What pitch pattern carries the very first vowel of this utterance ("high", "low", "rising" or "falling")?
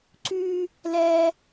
low